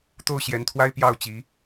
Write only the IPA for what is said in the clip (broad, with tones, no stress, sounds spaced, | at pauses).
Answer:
t̪ o˥˩ ʊ̯ ɕ j ɛ˧˥ n t̪ʰ w a˥ ɪ̯ p j ɑ˥˩ ʊ̯ t͡ɕ i˧˥